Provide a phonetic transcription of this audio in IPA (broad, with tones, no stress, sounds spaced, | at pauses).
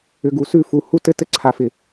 ʏ˨ ɡ u˨ s ʉ˦˨ f u˨ h u˧ t ɘ˧ t ɘ˧ ǀʰ a˨ f ɪ˨